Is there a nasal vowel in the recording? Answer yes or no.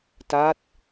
no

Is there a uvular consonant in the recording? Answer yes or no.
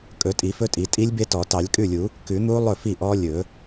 no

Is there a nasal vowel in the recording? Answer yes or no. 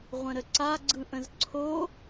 yes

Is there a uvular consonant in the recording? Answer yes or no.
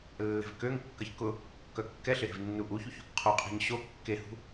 yes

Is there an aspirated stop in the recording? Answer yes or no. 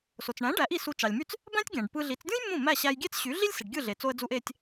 no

